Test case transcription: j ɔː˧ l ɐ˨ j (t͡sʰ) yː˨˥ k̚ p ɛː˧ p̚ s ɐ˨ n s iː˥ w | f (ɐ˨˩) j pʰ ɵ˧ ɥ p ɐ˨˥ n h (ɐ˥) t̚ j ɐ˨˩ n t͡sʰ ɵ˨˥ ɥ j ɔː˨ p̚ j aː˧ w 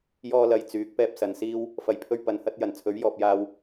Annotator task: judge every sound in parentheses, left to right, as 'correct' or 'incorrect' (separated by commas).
incorrect, correct, incorrect